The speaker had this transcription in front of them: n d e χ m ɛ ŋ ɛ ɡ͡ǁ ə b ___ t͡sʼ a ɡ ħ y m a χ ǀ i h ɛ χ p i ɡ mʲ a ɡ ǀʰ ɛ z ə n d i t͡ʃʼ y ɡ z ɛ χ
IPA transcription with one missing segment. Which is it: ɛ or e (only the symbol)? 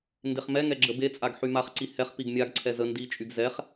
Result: e